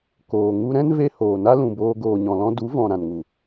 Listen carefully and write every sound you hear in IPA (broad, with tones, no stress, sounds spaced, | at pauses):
k oː˨ ŋ u˧ ɾ ɛ̃˦ n v e˧ h oː˨ n a˦ l ũ˨ b oː˧ ɡ oː˨ ɲ ɔ̃˨ l ɔ̃˧ d u˨˦ v ɔ̃˨ ɾ ã˨ n ŋ u˨